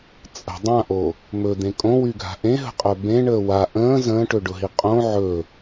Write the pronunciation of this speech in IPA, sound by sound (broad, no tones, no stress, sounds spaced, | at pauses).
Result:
t͡sʼ ə̤ dˤ ã ʔ o | m ɵ d̪ ẽ kʼ õ w y ɡʱ a̤ ʔ ẽ ɦ ə̤ qʼ œ b ẽ ɳ əː w a ʔ ə̃ː z ə̃ː ʈ ɵ ɖ ʊ ɦ i qʼ õ ʕ ɵ